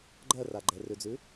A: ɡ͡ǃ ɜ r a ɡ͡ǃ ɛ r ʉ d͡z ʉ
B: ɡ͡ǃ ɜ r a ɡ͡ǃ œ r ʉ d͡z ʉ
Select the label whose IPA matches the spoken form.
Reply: A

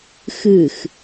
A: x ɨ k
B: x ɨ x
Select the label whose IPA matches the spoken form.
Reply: B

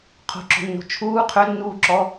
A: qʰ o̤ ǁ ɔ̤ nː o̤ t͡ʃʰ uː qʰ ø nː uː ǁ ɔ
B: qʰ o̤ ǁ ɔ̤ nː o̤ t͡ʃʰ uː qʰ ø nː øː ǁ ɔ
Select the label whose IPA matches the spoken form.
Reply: A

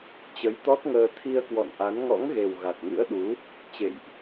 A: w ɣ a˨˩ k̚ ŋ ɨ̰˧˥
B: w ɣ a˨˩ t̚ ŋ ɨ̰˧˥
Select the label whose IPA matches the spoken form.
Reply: B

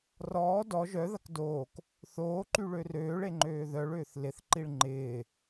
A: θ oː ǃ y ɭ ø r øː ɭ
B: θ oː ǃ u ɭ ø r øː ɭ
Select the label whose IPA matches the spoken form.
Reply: A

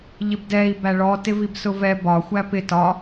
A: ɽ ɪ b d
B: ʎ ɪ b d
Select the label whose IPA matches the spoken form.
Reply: B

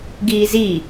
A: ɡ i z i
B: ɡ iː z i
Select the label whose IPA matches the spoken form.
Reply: B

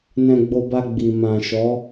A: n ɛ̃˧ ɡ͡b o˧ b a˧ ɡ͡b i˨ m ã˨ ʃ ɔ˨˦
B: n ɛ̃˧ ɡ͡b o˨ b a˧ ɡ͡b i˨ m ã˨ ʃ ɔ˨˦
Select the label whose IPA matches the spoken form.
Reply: A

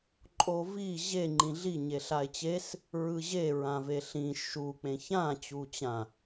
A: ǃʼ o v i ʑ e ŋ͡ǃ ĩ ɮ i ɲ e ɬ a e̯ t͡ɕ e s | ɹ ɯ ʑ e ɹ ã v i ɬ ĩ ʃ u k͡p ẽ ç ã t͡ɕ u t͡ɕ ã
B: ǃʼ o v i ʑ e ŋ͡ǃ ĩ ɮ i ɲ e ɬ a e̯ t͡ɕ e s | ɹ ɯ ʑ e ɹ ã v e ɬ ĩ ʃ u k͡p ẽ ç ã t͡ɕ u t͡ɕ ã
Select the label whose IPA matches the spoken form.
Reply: B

